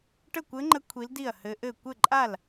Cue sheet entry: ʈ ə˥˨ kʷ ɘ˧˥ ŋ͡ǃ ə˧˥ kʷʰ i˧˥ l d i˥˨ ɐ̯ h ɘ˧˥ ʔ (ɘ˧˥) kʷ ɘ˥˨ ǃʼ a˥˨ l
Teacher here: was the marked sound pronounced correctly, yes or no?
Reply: no